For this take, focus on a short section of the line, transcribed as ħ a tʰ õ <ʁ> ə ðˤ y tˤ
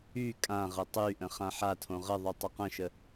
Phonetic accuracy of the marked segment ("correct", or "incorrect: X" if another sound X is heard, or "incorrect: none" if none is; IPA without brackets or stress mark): correct